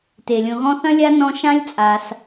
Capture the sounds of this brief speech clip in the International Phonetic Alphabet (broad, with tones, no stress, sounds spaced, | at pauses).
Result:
t e˩ lʲ õ˨ ɣ ɔ̃˦ θ ɐ̃˥ lʲ a˥ n ɔ̃˦ ʃ ã˥ lʲ t͡sʼ a˨ s